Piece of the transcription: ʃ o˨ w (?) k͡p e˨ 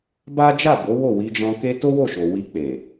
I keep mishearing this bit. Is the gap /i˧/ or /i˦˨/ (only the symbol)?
i˧